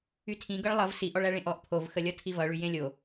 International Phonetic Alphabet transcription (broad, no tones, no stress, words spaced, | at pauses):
ytʰĩ ɡʌɭlˠʌv siʔ ɔɭæɭẽʔɔʔ pʰov xəlʲʌtʰivʌ ɭyjẽlʲo